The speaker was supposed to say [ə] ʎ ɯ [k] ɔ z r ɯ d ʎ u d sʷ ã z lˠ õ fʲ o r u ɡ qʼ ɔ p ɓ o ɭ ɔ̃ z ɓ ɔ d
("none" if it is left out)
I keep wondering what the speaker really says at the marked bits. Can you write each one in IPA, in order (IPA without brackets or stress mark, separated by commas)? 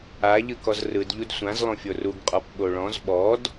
a, k